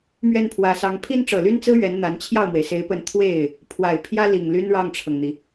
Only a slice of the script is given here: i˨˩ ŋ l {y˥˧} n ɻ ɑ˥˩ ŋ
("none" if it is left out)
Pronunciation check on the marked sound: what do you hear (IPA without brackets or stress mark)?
y˥